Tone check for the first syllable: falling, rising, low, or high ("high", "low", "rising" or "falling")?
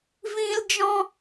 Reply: high